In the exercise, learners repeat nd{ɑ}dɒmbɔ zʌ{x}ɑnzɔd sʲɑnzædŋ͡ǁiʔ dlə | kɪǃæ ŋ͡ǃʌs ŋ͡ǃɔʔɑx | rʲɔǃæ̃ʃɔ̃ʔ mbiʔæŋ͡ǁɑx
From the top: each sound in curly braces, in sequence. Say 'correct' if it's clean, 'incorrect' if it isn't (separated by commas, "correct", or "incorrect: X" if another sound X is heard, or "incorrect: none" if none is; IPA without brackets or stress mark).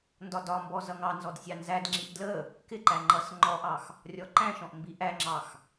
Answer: incorrect: ɒ, incorrect: ŋ